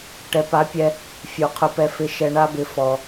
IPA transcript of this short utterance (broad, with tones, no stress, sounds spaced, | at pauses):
ʈ ɛ˨ p a˨˦ pʲ ɛ˧ | fʲ u˨ qʰ ʊ˧ p ɛ˧ f ɪ˧ ʃ ɛ˧ ɳ a˦ b ɪ˧ f ɔ˧